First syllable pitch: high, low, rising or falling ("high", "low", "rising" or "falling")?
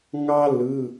high